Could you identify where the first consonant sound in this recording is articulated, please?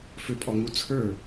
labial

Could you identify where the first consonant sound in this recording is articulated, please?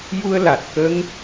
palatal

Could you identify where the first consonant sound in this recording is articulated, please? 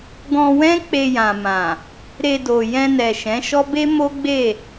velar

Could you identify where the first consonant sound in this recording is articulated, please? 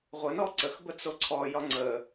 uvular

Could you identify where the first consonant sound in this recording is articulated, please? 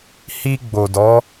glottal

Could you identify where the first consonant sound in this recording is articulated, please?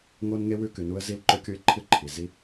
velar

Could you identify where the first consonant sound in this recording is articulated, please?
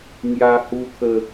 velar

